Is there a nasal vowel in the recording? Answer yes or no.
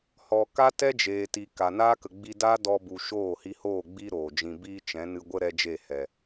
yes